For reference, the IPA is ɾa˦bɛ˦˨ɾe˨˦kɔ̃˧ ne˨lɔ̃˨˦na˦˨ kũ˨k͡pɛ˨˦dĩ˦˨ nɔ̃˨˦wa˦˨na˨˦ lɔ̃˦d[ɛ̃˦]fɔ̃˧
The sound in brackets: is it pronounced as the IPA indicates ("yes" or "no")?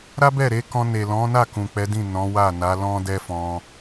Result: no